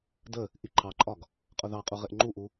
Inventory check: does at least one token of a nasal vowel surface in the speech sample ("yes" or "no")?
no